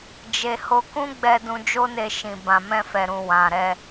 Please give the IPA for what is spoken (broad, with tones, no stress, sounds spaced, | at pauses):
d͡ʒ e˨ h o˧ k ũ˦ ɡ͡b ɛ˧ d ũ˧ d͡ʒ o˦ n e˧ ʃ ĩ˨ b ã˨ m ɛ̃˧ f ɛ˨ ɾ ũ˨ w ã˨ ɾ ɛ˧